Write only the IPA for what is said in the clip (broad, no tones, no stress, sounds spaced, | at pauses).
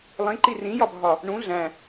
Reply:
lˠ ĩ ǃ i r ĩ j ɒ bʱ ɒ | ɳ ũ ɮ æ̃